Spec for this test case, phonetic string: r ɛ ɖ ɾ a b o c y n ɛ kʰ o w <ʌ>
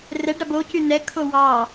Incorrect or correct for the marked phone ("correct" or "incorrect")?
incorrect